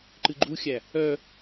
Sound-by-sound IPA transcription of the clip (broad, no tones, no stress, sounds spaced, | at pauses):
ǃ ɨ ɡ͡ǃ u xʲ æ | œ